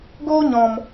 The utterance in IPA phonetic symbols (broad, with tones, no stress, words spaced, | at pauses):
ɡoː˦ɲɔ̃˨m